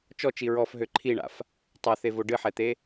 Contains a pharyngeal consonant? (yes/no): yes